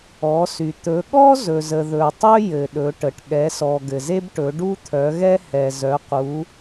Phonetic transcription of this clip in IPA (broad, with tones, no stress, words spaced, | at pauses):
ɔ˩˧sy˩ t̪ɵ˩˧ ɠɔ˦ zɵ˩zə˩ ðɵ˩tˤɵ˦ jɘ˩ɗɵ˩˧ʈə˩ʈ ɠɛ˩˧sɔ˩ ɡɘ˩ze˦bʈɵ˩˧ ɖu˦t̪ʰœ˩˧ɣɛ˦ hɛ˩ zœ˩˧qu˩˧